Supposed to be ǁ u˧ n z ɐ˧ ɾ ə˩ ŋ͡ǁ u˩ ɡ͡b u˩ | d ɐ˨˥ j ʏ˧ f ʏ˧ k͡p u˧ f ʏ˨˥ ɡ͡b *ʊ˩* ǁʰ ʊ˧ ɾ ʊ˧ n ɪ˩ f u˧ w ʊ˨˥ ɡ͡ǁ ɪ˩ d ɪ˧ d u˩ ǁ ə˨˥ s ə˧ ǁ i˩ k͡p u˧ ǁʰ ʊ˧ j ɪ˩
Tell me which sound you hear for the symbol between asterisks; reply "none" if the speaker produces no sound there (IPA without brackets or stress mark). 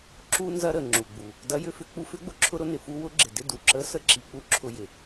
ʊ˩